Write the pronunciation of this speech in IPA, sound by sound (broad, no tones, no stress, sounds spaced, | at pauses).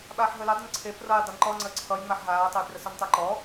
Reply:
ɓ aː ħ ɦ əː l e dˤ ə n ǀʰ e p r ʌː j dˤ e n ǃ ɔ ŋ͡ǀ əː ǀʰ ʌ j ŋ͡m a ħ ɦ aː tˤ ə j p r ə s ɔ n tˤ əː ǃ ɔ